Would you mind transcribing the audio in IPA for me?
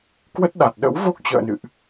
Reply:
kwə˦˥t̚ɗa˨˩t̚ ɗə̰˧˥wvo˦˥k̚t͡ɕə̰ː˧˨nɨ̰˧˨ʔ

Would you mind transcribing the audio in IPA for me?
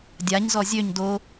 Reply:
dʲaɲzɔ zʲøɲ do

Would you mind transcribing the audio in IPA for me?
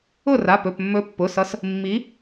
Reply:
ʊ˥˩ra˩˧˩ pɵ˩˧˩pmːɵ˨˥pːʊ˩˧˩sʌ˨˥s | mːi˨˥

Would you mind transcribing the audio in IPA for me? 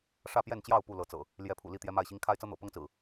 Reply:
ʂä˥˨pjɛ˥˨nt͡ɕjɑ˥˨ʊ̯ pu˥˨lɤ˨˦t͡sɤ̰˨˩ | ljɛ˨˦pʰṵ˨˩ li˥˨t̪jɛ˦ma˥˨ɪ̯ɕi˦ŋ kʰa˦ɪ̯t͡sɤ˦n̪ɤ̰˨˩ pɤ˦ŋt͡sɹ̩˨˩

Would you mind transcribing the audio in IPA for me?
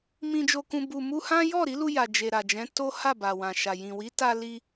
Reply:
mĩ˨d͡ʒo˨kũ˨ bu˨ mu˧hã˦ jɔ˦˨ɾi˨˦lu˧ ja˨d͡ʒe˨ɾa˨d͡ʒɛ̃˨˦ to˦ ha˦˨ ba˨wã˨ʃa˨ jĩ˨wi˨˦ta˧li˧

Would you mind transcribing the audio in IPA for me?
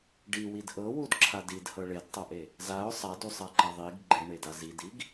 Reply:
ɖiwid ʔɤwudǁʰad idhɤ ɭedtˤɤʔe | zaʊ̯ sˤadusˤaǃa ðˤiɡ ɡ͡ǃeɳeda zidiɡ

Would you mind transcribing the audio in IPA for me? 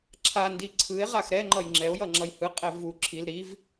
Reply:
ǁʰandi ǀʰɯe̯ ʁaxɾɛŋ͡ǃʌj ŋ͡ǁɛo̯ jʌŋ͡ǁʌjhɯqʼɛ vu ǁʰil ɾiv

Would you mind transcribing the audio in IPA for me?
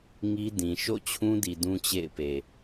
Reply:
ŋi˦ dĩ˨ ʃo̰˦˨t͡ɕʰũ˦di˨ dũ˦t͡ɕḛ˦˨ɪ̯pe˨

